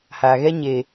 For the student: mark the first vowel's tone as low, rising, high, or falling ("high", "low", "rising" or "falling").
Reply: low